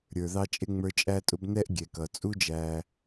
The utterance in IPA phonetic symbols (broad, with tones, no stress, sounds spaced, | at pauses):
ɾʲ ə˞˨ ð ɑ˥ t͡ʃʼ ɪ˥ ŋ͡m ə˞˦ t͡ʃʼ æ˦ tʼ ʊ˦ b n ɛ˥ ʔ ɡʲ ɛ˩ k ʌ˩ t͡sʼ u˥ d͡ʒ æ˨